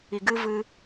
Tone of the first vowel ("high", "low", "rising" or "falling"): low